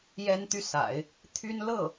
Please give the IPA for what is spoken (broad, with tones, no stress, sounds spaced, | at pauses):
j ɛ˥ n t̪ y˥˩ s a̰˨˩˦ ɪ̯ | t̪ʰ y˥ n l ɤ˥˩